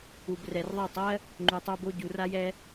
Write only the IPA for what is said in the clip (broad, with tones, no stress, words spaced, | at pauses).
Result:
u˨b rɛ˨rðˤa˦˨tˤɜ˦ | ŋ͡ǃu˨tˤo˧bo˧ɟu˨ ra˦jɛ˦